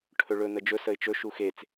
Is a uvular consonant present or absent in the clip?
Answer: absent